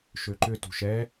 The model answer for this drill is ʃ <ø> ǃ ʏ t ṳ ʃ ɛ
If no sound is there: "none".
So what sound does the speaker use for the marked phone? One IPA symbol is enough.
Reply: ø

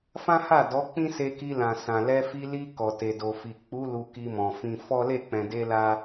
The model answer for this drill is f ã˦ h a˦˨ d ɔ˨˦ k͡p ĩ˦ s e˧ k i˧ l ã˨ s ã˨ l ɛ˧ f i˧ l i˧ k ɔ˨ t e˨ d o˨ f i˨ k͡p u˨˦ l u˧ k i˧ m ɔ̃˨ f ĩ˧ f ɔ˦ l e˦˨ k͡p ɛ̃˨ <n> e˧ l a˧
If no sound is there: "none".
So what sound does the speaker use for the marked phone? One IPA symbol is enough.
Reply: d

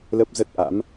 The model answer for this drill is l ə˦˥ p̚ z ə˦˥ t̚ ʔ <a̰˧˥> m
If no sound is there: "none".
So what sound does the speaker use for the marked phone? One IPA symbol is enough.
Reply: a̰˧˥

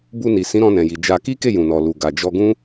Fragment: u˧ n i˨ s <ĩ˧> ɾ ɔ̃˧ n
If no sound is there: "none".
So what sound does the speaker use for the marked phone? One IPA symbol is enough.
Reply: ĩ˨˦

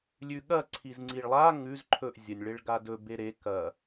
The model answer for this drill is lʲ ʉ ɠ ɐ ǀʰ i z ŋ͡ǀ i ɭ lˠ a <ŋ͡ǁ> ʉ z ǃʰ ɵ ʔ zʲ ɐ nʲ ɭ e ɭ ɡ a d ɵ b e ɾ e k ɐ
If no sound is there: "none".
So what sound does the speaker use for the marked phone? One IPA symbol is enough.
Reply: ŋ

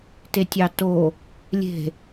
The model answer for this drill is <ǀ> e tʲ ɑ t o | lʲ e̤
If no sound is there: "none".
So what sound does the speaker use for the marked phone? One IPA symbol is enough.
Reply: t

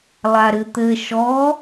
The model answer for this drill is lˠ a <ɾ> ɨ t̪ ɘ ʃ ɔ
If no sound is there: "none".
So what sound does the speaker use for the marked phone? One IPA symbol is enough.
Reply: ɾ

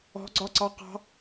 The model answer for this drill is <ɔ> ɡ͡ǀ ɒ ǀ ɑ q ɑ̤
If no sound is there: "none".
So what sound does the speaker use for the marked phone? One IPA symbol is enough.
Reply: ɔ̤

